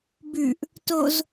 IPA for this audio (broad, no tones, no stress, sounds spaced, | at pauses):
b ʉ ʔ | t o z